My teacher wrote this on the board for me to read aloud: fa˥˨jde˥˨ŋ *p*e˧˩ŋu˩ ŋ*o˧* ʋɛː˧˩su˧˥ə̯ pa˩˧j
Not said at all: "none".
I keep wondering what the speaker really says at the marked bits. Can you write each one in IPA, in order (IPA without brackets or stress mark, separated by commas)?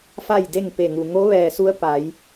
p, o˧˥